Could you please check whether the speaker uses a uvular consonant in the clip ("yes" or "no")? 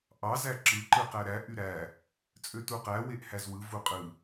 yes